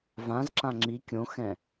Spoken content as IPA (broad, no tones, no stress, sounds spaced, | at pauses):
v ã z ǁ ã ŋ͡ǁ i kʲ õ x ɛ̃